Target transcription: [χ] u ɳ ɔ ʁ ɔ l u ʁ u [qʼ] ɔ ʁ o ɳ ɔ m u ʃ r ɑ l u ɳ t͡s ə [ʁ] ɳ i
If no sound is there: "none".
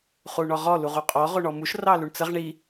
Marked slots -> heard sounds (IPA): χ, qʼ, ʁ

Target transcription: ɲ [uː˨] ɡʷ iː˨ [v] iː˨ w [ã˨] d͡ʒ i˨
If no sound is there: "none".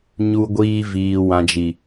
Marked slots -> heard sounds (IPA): u˨, v, ã˨

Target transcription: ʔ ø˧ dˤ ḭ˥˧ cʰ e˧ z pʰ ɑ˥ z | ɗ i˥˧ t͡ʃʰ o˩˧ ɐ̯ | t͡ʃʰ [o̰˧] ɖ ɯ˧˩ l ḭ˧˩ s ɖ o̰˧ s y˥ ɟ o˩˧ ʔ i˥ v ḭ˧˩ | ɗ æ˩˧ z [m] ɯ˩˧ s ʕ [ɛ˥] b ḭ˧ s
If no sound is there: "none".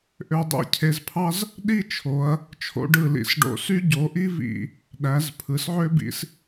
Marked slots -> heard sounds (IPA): o̰˧, pʰ, ø˥

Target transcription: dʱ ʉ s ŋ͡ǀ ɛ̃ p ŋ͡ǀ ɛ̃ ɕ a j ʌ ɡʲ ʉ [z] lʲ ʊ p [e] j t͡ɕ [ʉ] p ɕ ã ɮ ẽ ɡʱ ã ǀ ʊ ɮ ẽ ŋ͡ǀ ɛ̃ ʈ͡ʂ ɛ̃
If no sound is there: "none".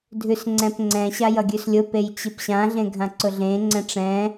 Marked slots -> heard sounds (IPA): s, e, ɨ

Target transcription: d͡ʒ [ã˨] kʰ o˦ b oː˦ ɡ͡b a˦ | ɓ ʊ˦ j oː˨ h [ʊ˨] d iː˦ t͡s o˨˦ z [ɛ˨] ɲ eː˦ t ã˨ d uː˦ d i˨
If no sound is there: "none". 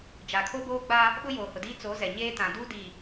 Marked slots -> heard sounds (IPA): a˨, ʊ˨, ɛ˨

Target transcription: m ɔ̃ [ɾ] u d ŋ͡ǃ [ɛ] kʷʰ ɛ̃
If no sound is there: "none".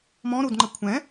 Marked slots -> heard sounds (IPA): ɾ, ə

